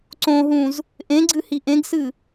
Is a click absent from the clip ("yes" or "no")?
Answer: no